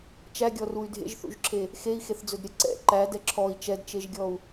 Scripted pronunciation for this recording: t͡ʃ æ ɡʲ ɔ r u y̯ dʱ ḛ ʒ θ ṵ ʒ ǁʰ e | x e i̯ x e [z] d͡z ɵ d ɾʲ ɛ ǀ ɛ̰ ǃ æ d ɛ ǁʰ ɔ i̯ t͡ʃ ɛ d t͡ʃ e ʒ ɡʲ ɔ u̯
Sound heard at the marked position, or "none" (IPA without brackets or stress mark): θ